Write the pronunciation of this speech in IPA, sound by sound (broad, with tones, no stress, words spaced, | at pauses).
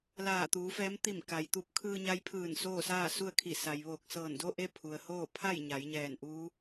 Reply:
laː˧˩t̪uː˩˧fɛː˧˥m t̪i˧˩m ka˩jt̪u˧p̚ kʰɯː˧ɲa˧jpʰɯː˧˩n soː˥˨saː˥˨ su˥˨ə̯kʰi˧˩ sa˩j ʋoː˧˩k̚sɤː˧˩ndo˥˨ʔe˥˨ pʰu˩ə̯hoː˥˨ pʰa˥˨j ɲa˩˧jɲɛː˧˩n ʔuː˧˥